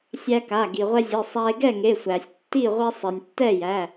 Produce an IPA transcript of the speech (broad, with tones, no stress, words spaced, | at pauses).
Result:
sʲæ˦ka˩˧˩ ɡi˩ʁʷɛ˦zʲe˩˧˩sˤæ˦e̯ ɡɛ˥˨ŋe˩˧˩sʷæ˩sʲ tːi˥˨ʁʷɛ˦ sˤɛ˩nʲ tːɛ˥˨ jæ˩˧˩